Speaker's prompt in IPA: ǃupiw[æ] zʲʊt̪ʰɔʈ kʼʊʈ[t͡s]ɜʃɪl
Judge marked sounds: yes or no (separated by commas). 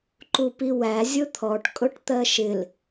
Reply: yes, no